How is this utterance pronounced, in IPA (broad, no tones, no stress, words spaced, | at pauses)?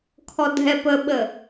kʰɔdʱɛpəɓə